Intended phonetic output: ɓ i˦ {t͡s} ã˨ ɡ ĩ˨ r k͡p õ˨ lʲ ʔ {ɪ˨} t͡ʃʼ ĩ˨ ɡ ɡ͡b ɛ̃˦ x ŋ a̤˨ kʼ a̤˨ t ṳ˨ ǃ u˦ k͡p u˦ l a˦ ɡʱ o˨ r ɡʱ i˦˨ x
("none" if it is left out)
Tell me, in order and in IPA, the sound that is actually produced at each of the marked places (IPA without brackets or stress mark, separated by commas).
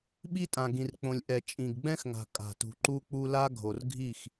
tʼ, ɛ˨